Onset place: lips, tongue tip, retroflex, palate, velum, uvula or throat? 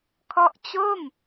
velum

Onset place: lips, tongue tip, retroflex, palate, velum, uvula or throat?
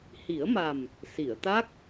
throat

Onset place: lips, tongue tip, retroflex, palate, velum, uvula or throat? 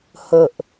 throat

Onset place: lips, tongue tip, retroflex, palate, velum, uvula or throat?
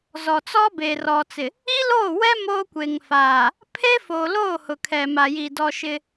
tongue tip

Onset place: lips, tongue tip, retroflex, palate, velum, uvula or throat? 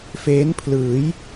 lips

